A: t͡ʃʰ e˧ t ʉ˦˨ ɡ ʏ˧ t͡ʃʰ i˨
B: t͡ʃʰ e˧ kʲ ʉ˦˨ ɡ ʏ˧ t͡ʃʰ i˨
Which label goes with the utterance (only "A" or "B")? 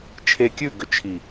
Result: B